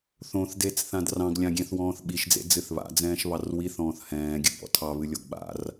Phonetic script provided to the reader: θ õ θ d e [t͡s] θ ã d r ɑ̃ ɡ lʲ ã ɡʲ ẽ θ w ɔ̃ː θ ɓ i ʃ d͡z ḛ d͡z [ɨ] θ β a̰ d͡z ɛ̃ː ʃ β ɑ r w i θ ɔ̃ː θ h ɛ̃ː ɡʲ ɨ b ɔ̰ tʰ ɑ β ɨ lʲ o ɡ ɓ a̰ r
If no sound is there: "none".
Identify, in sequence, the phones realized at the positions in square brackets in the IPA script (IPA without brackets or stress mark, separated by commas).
t͡s, ɨ